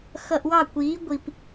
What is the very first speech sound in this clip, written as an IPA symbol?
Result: x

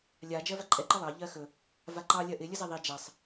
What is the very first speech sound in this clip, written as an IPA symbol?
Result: lʲ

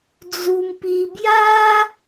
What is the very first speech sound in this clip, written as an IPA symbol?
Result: d͡z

